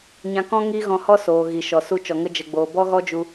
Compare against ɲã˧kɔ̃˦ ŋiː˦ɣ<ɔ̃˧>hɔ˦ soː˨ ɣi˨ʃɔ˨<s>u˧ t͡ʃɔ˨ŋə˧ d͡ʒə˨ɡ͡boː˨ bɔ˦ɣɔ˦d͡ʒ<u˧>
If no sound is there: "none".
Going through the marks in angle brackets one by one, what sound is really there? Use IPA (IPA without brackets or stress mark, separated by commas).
ɔ̃˧, s, u˧